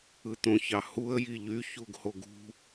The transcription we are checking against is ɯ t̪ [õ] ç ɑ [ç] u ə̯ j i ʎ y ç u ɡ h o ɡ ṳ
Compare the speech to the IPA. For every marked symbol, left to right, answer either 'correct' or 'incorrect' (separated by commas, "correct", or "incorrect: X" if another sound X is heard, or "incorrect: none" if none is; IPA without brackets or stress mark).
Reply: correct, incorrect: h